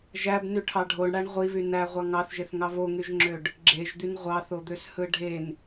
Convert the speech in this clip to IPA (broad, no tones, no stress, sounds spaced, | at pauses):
ʒ æ b n y ʈʰ ɑ ɖʱ o ɳ ɽ æ ɳ ʁʷ i β y n æ ʁʷ ɑ ŋ ɑ θ ʒ e θ ŋ ɑ β o ŋ y ʒ ŋ͡ǁ ø ɖ | ɡ͡ǁ e ʒ d̪ y n ʁʷ ɑ θ o d̪ ø s h ɯ ɖʱ e n